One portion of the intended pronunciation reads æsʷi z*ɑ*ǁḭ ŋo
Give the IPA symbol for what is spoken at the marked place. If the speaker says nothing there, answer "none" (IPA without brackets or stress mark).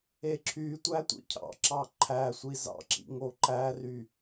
ɑ̰